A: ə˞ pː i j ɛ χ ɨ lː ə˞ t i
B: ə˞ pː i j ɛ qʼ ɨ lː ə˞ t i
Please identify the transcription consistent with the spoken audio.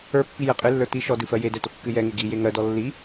B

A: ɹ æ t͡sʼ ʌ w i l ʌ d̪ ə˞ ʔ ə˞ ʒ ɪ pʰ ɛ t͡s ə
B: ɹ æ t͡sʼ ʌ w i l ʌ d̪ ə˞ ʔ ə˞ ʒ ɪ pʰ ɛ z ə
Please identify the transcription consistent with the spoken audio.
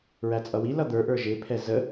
B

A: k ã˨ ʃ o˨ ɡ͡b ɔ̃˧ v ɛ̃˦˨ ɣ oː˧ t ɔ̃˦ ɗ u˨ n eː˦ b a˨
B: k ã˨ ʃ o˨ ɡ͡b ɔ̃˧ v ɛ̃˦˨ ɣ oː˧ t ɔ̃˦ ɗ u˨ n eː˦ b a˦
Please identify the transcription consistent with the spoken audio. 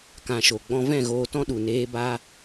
B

